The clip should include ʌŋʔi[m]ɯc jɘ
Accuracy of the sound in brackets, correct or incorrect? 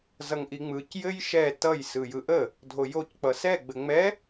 incorrect